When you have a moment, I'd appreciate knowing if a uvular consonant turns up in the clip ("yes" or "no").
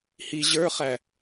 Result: yes